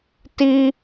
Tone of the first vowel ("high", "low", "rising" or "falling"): high